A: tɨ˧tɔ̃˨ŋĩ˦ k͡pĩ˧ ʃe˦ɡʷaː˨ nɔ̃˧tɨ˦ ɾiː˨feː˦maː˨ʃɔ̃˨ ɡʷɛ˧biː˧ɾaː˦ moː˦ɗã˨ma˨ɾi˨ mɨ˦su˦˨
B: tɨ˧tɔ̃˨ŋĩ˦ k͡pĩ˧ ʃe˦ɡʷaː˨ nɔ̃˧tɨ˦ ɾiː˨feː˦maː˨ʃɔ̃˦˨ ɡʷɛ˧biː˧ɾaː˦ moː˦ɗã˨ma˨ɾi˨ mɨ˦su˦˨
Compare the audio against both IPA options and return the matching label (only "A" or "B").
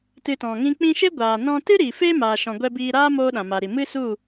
A